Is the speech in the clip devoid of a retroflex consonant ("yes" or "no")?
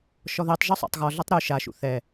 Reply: yes